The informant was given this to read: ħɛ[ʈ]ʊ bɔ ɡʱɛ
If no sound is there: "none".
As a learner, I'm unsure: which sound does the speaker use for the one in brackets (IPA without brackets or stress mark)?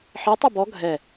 tˤ